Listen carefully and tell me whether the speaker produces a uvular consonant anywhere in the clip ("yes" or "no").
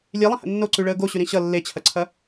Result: no